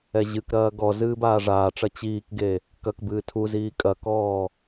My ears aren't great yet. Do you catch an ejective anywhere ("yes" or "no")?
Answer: yes